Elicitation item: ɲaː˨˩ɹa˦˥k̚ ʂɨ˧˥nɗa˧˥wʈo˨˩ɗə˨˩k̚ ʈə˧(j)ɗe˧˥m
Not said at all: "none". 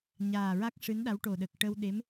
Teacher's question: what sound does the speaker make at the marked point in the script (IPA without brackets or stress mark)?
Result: w